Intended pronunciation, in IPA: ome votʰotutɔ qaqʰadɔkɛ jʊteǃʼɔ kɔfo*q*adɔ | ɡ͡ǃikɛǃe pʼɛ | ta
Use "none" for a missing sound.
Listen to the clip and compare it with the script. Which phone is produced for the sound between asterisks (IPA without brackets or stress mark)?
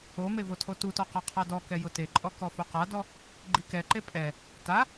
q